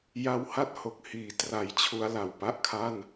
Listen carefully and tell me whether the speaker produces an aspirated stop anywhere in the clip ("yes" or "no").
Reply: yes